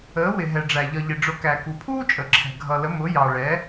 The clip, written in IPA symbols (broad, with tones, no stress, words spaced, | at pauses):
əː˩˧wɪ˩ ɦɛ˩ɖ͡ʐæ˩ ʎʌ˩ʎɪ˩ɖ͡ʐʊ˩˧ kæ˩ku˩pʰuː˥ t͡ʃʼə˩ǁʰɛ̤˩ ɡʱʌ˩lə˩˧ mʊ˩˧jɑ˩ɭɛ˩˧